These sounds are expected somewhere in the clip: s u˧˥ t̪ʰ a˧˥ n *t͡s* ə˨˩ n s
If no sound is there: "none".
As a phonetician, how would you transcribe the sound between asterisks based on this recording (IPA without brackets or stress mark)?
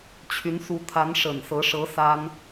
ʂ